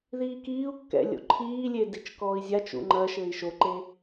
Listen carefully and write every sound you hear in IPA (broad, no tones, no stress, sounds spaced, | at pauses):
ð iː k iː u̯ kː ɛ̰ lʲ o̰ ǃʰ iː lʲ e d i t͡ʃ k ɔː i̯ zʲ a t͡ʃ ṵ ŋ͡ǃ ɐ ʃ ɘː i̯ ʃ o ǃ e